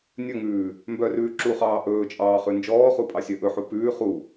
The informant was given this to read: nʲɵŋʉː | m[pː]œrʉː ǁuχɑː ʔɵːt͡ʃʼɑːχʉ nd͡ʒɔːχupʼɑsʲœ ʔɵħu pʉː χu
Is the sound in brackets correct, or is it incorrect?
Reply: incorrect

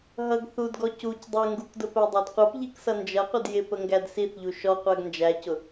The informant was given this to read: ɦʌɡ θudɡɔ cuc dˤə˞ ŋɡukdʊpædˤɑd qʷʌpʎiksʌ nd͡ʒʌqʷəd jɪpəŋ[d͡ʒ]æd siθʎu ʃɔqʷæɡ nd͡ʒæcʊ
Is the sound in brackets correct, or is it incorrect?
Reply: incorrect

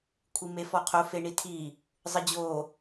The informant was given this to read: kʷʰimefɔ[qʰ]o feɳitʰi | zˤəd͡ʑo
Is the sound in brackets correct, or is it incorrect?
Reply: correct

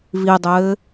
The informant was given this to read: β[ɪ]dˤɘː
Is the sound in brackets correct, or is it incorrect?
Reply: incorrect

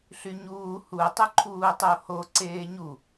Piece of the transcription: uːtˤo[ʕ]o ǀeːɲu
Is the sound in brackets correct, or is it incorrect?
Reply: incorrect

